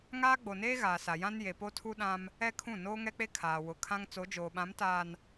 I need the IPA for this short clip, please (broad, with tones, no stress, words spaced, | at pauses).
ŋaː˦ɡ͡bo˨neː˦ ɣaː˨sa˨jã˦n je˨po˦tʰu˦ɗã˦m | ɛ˦ kʰũ˦˨noː˦ŋɛ˦k͡pe˦ kʰaː˨wʊ˨kʰã˦ŋ t͡so˨˦d͡ʒoː˨ɓã˨˦mtaː˨n